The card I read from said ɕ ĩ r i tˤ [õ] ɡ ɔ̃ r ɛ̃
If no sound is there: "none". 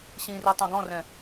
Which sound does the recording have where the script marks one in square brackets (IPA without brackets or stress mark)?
õ